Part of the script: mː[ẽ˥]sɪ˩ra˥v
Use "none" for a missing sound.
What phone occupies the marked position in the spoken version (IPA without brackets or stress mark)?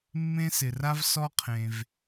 ẽ˥